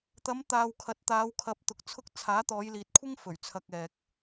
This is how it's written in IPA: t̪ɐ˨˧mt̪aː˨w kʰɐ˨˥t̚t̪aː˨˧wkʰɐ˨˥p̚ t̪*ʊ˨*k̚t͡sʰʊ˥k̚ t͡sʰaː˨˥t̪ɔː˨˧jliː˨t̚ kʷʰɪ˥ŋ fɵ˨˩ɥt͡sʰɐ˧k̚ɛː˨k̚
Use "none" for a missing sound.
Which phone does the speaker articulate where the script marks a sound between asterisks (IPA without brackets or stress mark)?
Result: ʊ˨